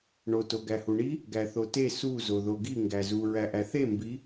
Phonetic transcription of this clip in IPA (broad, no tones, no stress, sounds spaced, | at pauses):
ɳ o t o ɡ æ h u ɳ i | ɡ æ θ o t e s u z o ð o ɡ i ŋ ɡ æ z u ɹ æ ʔ æ θ e m b i